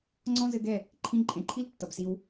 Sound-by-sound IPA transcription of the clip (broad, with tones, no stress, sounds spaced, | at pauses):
ŋ͡ǀ ɔ̃˦ z ɘ˧ ɡ ɛ˦˨ | ǃʰ ĩ˧ ǃʼ ẽ˨ ǃʰ i˦ l tː ʌ˨ b s i˧ w